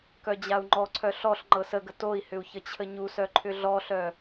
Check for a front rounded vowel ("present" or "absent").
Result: present